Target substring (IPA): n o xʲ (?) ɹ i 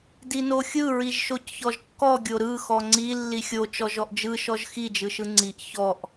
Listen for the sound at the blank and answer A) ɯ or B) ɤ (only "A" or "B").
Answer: A